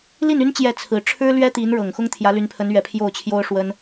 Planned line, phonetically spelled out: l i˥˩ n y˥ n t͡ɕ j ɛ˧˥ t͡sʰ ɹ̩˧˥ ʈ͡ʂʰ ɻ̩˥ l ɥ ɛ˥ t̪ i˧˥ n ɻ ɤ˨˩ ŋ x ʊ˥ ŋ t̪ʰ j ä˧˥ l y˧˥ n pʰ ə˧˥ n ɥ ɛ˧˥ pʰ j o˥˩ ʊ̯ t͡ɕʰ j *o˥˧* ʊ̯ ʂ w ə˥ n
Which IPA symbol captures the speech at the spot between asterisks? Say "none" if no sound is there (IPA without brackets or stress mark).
o˥